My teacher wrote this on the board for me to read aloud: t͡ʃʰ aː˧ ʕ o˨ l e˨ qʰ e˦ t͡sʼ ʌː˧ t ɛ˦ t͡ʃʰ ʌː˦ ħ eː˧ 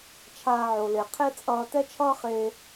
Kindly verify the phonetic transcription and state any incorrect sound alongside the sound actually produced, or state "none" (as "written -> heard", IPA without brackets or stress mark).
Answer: ħ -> χ